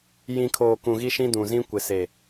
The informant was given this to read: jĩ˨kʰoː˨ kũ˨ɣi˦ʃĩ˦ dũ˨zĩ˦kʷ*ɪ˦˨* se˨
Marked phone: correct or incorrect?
incorrect